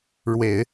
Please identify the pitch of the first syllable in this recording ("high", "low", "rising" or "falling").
low